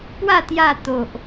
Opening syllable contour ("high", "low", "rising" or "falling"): falling